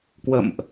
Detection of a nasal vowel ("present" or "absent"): absent